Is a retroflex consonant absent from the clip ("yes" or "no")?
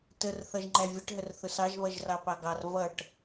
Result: no